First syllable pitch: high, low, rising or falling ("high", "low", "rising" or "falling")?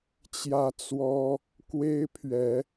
high